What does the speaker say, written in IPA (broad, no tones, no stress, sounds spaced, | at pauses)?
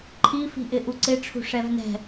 ǃʰ i f i̤ ʔ ɪ ʔ u ǀ ɪ ʈ͡ʂʰ ṳ ʂ ɛ v n ɛ̤